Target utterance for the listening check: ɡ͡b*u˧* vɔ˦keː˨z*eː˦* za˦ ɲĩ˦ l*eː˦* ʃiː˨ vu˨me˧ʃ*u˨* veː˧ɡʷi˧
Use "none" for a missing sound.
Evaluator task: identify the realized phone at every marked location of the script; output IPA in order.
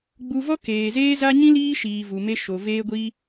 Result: u˧, eː˦, iː˦, o˨

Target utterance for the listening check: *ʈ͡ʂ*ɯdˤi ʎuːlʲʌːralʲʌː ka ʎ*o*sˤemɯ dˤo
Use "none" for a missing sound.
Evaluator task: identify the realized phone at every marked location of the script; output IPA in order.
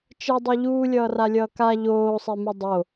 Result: t͡ʃ, oː

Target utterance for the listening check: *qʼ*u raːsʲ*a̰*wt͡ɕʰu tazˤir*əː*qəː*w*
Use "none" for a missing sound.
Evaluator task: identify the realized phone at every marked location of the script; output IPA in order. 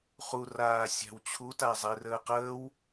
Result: χ, a̤, əː, w

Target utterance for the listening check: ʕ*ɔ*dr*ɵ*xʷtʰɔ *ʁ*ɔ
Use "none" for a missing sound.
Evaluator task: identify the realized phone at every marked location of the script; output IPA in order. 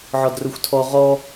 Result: ɔ, ɵ, ʁ

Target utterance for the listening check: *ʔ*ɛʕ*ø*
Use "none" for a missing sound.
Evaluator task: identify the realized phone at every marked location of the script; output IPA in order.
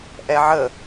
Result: ʔ, ə

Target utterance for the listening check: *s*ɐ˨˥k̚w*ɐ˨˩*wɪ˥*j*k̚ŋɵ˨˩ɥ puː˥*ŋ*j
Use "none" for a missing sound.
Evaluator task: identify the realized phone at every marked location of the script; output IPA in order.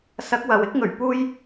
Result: s, ɐ˨, none, none

